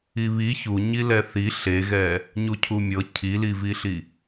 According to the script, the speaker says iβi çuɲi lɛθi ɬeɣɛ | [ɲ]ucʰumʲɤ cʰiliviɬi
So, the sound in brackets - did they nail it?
yes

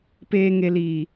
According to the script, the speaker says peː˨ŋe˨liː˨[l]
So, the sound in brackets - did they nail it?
no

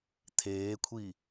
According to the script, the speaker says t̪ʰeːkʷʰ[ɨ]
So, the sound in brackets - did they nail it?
no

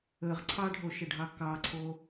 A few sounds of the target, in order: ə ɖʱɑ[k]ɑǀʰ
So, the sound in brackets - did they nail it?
yes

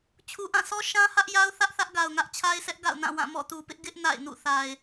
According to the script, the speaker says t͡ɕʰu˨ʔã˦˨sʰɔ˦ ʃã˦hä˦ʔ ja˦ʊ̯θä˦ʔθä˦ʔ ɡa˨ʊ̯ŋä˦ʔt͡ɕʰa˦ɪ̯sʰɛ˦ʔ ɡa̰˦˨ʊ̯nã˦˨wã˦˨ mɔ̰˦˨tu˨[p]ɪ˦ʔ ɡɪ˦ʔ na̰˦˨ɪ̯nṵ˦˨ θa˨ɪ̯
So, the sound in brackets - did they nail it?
yes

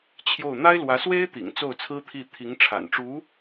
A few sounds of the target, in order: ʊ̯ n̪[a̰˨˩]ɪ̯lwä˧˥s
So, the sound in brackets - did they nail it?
no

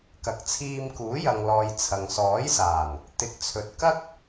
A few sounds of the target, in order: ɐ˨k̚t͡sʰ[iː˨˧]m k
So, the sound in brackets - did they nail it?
no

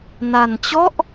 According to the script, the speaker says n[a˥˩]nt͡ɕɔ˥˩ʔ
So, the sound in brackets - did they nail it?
no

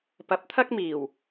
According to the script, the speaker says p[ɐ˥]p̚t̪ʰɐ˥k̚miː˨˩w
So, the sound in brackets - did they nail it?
no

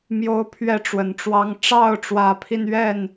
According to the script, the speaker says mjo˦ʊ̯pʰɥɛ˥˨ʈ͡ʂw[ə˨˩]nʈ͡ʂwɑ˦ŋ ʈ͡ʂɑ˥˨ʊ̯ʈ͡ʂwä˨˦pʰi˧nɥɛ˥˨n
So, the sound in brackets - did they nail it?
yes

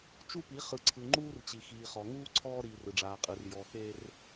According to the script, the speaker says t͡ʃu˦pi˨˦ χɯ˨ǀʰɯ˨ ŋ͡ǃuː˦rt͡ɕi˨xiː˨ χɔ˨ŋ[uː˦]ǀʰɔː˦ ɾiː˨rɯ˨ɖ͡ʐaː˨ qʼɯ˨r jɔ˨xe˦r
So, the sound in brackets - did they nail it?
yes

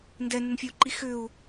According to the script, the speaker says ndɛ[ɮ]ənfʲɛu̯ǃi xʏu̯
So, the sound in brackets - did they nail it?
no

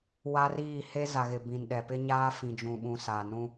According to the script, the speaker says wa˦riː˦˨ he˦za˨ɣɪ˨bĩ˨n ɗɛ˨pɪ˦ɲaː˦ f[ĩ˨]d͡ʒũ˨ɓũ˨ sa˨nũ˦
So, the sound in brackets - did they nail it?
yes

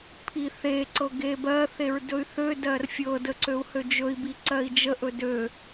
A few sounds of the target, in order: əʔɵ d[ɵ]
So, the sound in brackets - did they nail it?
no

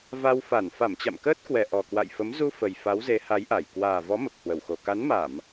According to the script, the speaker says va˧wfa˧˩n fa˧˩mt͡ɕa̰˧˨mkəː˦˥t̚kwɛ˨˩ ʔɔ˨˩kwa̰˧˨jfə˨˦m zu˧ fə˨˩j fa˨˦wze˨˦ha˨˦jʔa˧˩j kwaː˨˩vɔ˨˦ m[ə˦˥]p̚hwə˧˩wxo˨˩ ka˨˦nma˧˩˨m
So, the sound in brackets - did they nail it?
no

